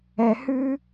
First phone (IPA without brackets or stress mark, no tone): ɛ